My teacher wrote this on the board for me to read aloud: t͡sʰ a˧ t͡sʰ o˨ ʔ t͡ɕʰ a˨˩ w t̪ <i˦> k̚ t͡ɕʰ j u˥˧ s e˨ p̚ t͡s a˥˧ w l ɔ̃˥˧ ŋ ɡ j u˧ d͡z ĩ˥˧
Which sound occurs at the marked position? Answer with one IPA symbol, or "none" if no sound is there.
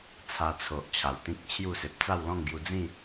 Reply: ĩ˦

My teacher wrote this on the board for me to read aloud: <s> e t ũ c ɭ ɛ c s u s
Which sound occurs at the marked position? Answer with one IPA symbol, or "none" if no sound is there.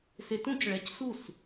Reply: s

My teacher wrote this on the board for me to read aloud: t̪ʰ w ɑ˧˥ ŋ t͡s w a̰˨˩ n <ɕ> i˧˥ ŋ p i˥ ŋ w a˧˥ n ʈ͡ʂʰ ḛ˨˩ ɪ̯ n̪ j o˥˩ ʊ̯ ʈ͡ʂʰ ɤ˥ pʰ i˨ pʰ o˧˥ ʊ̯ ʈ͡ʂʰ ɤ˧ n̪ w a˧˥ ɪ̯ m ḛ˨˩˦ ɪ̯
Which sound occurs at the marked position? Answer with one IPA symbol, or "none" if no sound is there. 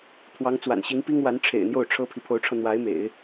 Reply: ɕ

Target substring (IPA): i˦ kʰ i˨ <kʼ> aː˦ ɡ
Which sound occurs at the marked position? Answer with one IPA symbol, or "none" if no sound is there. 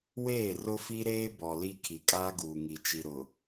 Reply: kʼ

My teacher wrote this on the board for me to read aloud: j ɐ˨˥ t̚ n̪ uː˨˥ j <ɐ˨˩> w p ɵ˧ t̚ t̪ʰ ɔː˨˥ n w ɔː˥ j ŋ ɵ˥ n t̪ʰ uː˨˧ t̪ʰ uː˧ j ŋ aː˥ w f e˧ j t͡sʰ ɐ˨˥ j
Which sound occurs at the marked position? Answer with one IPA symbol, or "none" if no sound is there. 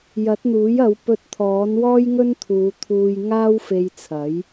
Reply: ɐ˨˧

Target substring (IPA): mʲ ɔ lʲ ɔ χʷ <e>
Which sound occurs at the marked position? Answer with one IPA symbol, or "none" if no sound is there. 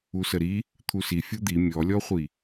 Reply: i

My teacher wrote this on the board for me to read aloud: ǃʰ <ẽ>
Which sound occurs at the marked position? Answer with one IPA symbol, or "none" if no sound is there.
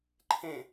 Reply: ẽ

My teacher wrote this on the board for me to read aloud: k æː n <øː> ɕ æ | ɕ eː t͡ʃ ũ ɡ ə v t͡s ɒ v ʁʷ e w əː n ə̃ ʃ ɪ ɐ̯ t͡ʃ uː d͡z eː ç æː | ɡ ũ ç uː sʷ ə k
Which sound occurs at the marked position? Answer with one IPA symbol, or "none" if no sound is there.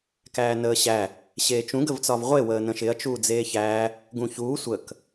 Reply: əː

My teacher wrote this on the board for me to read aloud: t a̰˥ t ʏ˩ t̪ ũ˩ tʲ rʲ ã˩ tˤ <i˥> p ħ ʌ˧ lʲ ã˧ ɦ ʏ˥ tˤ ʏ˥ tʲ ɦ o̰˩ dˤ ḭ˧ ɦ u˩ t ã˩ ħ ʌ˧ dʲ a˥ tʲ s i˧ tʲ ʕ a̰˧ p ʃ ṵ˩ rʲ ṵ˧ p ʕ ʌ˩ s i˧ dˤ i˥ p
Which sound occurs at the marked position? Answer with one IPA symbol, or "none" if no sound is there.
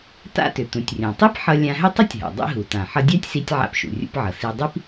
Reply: i˥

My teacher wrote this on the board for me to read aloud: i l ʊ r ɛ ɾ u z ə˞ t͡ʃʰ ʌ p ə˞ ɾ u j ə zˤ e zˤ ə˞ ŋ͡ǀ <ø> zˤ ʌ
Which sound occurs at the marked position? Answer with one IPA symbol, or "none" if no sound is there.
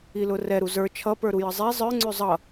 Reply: ø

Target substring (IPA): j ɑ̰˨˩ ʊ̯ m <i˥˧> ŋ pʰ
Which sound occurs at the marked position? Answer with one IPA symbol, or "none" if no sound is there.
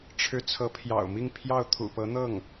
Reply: i˥˧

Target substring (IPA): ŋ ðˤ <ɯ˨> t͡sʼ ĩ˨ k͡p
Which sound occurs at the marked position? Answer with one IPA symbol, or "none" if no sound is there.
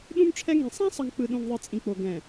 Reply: ɯ˨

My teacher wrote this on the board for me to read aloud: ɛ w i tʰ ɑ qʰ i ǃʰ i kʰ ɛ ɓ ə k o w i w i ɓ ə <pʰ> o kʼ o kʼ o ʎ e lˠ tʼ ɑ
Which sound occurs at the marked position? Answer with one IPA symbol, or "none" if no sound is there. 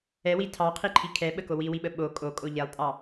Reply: ɓ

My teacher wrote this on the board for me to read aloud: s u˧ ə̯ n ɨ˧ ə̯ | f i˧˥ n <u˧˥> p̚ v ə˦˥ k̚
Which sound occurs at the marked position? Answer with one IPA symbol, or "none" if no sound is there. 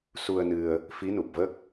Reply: u˨˩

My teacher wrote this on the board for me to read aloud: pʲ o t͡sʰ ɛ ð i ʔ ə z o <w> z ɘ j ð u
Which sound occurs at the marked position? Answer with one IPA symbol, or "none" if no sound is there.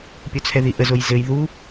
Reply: j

